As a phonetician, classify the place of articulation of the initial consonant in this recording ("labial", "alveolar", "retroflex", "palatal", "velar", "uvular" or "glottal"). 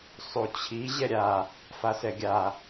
alveolar